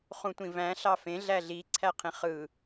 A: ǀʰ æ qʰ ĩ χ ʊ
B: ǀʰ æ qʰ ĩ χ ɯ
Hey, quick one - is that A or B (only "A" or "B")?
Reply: B